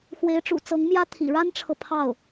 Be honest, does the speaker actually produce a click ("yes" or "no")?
no